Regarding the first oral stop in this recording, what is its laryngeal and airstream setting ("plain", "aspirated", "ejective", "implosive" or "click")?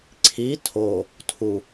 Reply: click